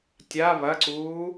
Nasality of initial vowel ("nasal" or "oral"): oral